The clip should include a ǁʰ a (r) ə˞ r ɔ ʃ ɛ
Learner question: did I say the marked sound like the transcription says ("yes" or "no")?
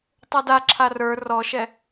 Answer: yes